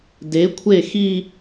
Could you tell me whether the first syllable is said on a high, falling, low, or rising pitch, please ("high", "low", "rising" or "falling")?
rising